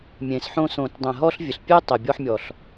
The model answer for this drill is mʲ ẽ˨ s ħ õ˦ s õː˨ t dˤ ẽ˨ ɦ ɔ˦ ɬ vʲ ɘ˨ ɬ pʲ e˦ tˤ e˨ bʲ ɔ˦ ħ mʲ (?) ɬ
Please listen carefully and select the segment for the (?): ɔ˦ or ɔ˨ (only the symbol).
ɔ˨